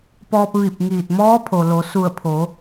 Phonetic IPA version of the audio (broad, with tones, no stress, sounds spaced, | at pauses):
p ɔː˧ p̚ ʋ i˧˩ p̚ ŋ iː˧˩ t̚ m ɔː˧˥ pʰ o˩ l o˩˧ s u˧˩ ə̯ pʰ o˩˧